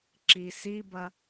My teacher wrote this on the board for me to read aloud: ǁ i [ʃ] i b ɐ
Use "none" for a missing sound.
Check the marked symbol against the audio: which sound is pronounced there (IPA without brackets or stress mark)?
s